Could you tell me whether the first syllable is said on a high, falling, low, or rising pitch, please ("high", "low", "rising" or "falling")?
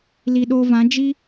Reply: low